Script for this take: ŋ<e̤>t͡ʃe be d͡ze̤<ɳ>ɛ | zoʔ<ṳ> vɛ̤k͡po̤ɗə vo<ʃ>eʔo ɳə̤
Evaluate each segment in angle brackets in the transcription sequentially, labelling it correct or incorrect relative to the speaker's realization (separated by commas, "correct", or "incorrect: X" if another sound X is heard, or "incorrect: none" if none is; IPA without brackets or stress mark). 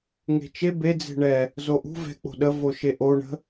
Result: correct, correct, correct, correct